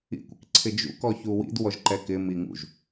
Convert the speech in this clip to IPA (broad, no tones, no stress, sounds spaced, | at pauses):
ḭ kʷ ɪ k ǀʰ ɪ d͡ʒ ṵ k ɔ ç u w ḭ d w ɔ ʒ ǃ ɛ k ɪ m i ŋ ṵ ʒ